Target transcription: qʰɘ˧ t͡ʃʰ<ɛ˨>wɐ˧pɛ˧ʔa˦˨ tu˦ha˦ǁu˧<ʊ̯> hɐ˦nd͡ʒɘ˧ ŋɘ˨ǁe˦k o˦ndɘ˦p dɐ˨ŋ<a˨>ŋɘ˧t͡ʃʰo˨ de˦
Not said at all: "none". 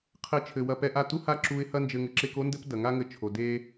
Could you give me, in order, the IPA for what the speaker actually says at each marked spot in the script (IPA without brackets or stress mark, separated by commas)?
ɘ˨, ɪ̯, a˦